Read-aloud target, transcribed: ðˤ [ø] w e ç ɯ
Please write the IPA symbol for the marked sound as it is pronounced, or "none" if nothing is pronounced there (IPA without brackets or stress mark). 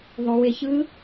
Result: ø